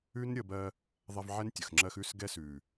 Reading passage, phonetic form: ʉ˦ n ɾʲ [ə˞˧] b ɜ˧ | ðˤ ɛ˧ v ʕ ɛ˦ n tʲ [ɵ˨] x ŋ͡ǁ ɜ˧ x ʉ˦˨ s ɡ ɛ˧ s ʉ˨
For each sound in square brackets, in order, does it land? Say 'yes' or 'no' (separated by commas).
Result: no, no